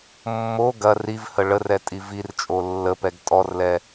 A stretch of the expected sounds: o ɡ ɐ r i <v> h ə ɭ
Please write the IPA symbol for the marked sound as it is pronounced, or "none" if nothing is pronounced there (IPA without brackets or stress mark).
v